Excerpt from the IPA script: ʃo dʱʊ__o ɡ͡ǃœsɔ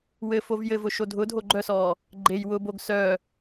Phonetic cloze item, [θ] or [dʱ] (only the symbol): dʱ